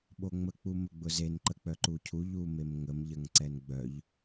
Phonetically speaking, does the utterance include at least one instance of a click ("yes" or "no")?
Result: yes